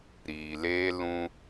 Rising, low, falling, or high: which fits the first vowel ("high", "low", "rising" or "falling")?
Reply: low